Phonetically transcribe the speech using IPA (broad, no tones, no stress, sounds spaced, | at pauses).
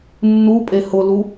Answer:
nː u pʼ e h ʊ l u